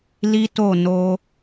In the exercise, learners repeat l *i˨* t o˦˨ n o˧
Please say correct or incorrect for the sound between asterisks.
incorrect